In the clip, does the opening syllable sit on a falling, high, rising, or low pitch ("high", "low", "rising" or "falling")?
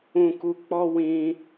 low